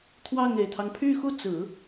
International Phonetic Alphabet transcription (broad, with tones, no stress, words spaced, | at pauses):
t̪ʰwɑ˥˩ŋe˨˩ɪ̯t̪ʰɑ˦ŋ pʰy˥˧xu˥˩t͡sɹ̩˨˩˦